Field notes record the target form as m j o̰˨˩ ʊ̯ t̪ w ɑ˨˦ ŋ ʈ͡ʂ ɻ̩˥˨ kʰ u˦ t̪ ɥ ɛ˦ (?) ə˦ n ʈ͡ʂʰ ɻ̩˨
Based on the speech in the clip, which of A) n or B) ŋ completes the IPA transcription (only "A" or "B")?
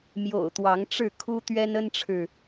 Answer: A